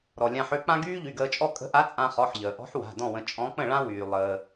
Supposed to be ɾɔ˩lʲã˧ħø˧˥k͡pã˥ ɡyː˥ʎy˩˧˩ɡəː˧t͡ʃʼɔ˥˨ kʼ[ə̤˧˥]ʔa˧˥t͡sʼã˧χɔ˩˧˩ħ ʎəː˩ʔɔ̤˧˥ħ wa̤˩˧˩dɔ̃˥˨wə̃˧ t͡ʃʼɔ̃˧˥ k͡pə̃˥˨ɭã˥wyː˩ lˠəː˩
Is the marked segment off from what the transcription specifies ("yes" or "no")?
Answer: no